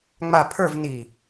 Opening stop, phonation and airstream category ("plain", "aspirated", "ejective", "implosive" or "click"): aspirated